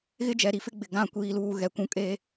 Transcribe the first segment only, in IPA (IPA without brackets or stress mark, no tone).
ɣ